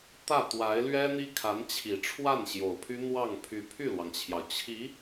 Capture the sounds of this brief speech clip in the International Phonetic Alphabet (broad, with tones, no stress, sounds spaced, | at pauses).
t̪ ä˥˩ t̪ w a˧˥ ɪ̯ l ɥ ɛ˥ n̪ i˥ kʰ a˧˥ n t͡ɕʰ i˨˩ ʈ͡ʂʰ w a˥˩ n ɕ j o˨˩ ʊ̯ pʰ y˥ n̪ w ɑ˥˩ ŋ pʰ y˧˥ pʰ y˥˩ l w ɑ˩ ŋ t͡ɕʰ j ɑ˩ ʊ̯ t͡ɕʰ i˧˥